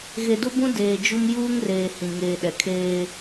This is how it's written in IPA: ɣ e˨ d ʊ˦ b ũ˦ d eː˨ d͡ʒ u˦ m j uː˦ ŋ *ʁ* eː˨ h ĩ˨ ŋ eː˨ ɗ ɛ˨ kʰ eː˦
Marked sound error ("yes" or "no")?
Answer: yes